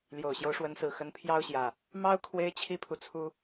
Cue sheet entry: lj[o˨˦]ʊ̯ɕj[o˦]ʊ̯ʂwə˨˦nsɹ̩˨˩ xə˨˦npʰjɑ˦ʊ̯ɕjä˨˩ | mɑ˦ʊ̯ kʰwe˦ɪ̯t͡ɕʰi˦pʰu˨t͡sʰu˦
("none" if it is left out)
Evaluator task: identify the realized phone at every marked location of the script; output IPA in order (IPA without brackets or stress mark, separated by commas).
o˨˩, o˦